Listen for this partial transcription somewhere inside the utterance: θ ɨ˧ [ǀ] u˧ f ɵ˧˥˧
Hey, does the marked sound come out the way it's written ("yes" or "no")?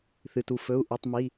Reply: no